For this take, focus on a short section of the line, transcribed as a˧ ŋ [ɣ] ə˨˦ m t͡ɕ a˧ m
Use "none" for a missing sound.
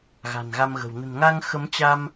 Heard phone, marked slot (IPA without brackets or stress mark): x